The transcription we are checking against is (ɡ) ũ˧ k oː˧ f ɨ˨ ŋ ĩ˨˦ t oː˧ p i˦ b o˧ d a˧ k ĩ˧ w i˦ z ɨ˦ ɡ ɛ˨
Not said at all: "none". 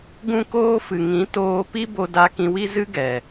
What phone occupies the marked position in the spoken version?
ɡ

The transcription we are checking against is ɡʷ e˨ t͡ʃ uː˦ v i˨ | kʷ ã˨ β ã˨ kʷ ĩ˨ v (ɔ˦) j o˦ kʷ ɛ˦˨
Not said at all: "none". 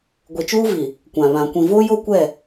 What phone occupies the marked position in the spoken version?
o˦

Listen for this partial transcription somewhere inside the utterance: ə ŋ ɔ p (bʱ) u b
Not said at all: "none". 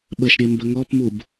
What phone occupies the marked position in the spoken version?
m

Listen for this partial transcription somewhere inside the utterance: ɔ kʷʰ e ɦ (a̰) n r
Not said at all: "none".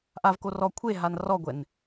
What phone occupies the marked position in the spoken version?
a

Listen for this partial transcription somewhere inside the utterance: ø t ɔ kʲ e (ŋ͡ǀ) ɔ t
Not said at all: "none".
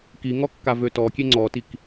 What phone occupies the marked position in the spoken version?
ŋ͡ǀ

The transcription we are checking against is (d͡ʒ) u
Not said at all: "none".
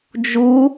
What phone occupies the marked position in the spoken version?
d͡ʒ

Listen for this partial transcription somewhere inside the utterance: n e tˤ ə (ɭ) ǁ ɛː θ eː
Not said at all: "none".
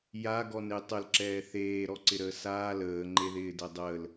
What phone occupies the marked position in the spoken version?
l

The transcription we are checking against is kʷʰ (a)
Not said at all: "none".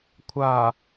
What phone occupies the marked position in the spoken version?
a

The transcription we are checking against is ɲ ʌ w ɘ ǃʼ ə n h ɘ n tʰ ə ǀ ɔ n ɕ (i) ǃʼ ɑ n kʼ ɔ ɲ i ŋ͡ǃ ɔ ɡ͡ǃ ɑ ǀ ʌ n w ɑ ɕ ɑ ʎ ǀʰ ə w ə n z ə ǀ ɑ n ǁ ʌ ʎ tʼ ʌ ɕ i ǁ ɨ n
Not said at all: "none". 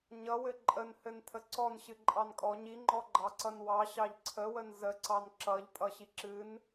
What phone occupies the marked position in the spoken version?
ɨ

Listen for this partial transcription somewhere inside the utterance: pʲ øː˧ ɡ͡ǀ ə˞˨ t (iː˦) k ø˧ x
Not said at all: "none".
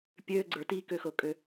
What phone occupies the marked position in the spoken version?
iː˦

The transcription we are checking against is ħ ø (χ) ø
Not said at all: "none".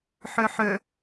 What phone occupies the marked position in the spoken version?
ħ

